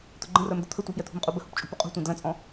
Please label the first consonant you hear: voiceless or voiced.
voiceless